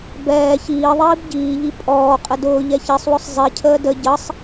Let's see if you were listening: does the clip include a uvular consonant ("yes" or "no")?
yes